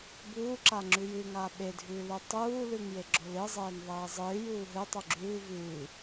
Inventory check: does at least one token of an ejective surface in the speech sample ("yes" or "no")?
no